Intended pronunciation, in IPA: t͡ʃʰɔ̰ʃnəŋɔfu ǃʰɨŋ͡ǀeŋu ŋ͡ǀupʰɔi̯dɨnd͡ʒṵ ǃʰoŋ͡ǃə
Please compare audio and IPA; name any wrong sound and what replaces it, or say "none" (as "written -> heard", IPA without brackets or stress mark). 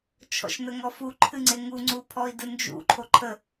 ŋ͡ǃ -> ǃʰ